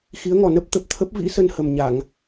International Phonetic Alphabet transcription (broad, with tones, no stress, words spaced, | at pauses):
xi˨˦ə̯ŋɔ˨˩nə˦˥p̚t̪ə˨˩p̚ t̪ʰə˦˥p̚vḭ˧˥sə˧n hə˨˩mɲa˧˩˨ŋ